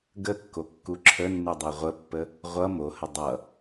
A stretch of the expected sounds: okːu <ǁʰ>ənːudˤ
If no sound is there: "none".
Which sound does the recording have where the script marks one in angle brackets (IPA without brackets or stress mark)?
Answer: ǁʰ